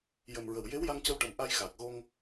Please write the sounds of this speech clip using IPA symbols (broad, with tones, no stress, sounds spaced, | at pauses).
j ə˨˩ m ɹ ə˨˩ w j e˧˥ w j a˧ ŋ c ə˧ w ʈ ə˨˩ m ʔ a˧ j x aː˨˩ k̚ ɣ o˧ ŋ